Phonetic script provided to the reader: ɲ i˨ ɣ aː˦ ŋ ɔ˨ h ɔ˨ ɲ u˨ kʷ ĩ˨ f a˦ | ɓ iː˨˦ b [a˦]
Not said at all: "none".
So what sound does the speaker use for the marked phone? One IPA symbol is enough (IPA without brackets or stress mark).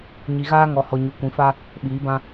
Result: ã˦